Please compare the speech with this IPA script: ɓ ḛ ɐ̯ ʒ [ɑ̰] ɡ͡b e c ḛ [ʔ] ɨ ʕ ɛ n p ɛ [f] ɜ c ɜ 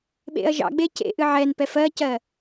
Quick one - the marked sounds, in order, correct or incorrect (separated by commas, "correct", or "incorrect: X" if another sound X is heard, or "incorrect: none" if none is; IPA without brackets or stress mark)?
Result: correct, correct, correct